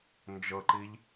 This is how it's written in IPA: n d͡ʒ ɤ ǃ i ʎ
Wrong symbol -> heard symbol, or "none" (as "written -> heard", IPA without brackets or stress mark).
none